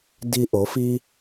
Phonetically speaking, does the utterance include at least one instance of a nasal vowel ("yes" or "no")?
no